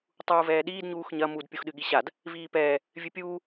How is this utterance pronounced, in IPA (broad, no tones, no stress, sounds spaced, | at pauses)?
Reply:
tˤ uː v ɛː ɗ iː d ɲ uː x ɲ ɐ m u d pʲ u x ɗ ɨ ɠ i ɕ a d | v iː p ɛː | vʲ ɨ pʲ uː